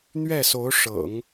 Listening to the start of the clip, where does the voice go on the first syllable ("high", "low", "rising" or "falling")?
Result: falling